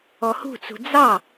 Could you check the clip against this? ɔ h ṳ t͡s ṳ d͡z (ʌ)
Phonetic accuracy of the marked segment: incorrect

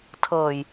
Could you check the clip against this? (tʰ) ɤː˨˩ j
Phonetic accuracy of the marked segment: correct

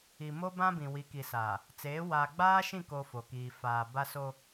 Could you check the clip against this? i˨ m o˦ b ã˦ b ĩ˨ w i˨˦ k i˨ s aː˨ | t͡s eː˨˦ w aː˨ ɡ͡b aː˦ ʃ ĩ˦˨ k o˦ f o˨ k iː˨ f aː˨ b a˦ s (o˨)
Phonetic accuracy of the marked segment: incorrect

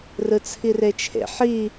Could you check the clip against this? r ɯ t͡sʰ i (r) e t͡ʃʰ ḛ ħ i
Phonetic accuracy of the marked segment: correct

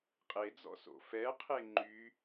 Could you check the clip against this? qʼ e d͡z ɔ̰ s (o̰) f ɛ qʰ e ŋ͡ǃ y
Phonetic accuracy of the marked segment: correct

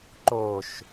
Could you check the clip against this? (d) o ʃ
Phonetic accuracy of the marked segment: incorrect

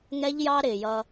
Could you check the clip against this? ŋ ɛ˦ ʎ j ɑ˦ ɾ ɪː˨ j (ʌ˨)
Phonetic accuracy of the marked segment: incorrect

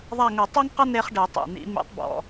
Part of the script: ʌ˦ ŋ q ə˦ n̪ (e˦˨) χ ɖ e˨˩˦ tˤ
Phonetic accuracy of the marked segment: incorrect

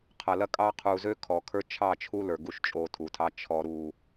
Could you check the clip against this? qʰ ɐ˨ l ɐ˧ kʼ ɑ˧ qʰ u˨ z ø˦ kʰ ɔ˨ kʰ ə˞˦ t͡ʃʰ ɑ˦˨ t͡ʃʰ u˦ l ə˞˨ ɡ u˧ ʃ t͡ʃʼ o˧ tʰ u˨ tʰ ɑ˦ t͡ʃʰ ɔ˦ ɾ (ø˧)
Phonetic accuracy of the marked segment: incorrect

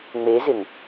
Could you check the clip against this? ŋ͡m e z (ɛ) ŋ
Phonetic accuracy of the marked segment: incorrect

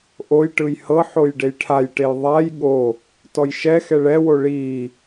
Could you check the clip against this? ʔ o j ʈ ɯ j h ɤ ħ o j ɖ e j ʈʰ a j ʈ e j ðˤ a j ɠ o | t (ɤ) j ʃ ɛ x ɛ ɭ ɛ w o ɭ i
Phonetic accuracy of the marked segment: incorrect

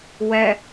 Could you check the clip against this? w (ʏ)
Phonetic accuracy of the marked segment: incorrect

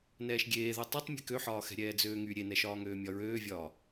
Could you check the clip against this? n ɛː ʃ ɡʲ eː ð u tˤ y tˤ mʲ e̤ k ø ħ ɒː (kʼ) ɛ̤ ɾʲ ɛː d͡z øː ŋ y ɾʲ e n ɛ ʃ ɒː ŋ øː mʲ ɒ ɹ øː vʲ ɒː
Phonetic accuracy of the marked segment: incorrect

